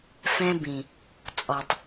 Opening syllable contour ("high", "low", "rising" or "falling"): high